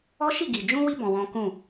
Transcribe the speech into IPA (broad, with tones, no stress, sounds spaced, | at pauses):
ɔ˦ ʃ i˦˨ ɡ i˨ d͡ʒ ũ˧ w i˧ b ɔ̃˧ w ɔ̃˦ k ũ˦˨